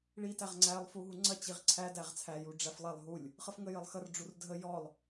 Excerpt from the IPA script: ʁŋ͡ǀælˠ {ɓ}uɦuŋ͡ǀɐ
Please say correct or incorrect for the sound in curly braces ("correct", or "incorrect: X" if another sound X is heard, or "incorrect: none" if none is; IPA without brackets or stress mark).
incorrect: f